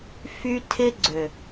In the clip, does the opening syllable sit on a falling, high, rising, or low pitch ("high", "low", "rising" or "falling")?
high